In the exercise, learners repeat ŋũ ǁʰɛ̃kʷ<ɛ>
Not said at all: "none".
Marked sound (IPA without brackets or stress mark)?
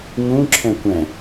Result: ɛ̃